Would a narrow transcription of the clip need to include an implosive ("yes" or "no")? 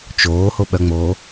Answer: yes